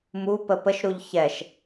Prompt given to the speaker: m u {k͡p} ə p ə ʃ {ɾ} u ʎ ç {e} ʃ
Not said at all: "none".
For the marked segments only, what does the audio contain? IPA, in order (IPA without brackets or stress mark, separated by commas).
p, ɾ, ɛ